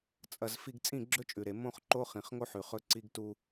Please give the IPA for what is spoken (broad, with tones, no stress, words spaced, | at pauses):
t͡sʼɐ˨z fi˨ɡ t͡sʼĩ˦˨ɡ͡ǁɵ˦t͡ʃʼʉ˨ɾe˨ mõ˦χ ǃo˦ χĩ˨χŋo˦ħʉ˨ χɵ˦ǀi˦ɡtu˦